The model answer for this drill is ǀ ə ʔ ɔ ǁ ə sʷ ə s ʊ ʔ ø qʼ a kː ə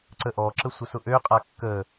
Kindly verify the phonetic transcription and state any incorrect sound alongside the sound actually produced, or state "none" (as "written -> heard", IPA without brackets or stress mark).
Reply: none